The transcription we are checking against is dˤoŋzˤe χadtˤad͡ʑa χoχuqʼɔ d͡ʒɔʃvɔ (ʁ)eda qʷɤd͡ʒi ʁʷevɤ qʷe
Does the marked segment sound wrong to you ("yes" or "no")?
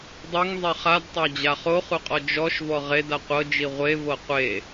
no